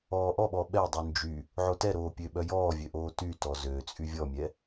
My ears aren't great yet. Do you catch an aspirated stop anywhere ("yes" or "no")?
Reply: no